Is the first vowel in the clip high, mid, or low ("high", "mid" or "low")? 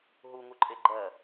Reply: high